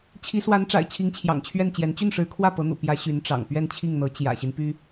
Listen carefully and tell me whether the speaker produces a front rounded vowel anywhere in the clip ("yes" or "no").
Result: yes